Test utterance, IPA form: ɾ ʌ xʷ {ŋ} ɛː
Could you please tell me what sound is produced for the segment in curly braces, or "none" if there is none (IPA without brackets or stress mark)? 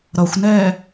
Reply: n